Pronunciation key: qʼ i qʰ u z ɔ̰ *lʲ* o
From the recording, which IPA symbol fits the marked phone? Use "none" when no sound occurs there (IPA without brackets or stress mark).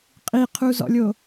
lʲ